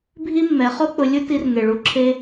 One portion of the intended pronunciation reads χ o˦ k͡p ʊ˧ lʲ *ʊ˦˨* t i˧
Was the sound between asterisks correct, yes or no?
no